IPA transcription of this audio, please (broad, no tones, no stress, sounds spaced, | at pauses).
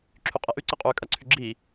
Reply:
ǁʰ y qʼ e ʔ y ǀ ɜ qʼ yː kʼ ɐ ǀʰ y ɡ͡ǁ i